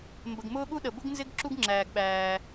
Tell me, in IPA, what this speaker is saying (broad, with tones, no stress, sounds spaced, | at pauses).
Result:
m b ə˩ ɡ m ʊː˥ ɠ u˥ ɗ ə˩ b ʊ˥ ɡ n z ɪ˥ ɡ ǁ u˥ ɡ ŋ͡ǁ æː˩ ɡ ɓ æː˩